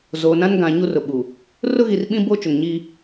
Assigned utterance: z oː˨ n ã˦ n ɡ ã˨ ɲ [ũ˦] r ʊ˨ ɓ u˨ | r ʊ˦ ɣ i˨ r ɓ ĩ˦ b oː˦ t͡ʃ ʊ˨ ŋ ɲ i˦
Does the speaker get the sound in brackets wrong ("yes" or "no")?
yes